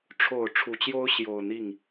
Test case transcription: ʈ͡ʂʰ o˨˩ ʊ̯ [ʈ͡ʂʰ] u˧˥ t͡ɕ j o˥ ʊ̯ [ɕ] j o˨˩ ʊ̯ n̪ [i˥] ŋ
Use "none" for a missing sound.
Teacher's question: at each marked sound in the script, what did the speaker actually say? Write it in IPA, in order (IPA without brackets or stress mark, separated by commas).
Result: ʈ͡ʂʰ, ɕ, i˥˩